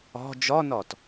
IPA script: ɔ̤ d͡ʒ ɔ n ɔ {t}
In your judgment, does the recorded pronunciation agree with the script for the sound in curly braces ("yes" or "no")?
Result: yes